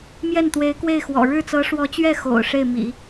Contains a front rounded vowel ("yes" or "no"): no